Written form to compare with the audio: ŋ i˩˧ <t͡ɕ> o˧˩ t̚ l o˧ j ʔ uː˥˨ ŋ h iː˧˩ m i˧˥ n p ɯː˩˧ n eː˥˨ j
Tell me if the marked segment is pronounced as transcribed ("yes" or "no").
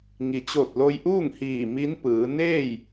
yes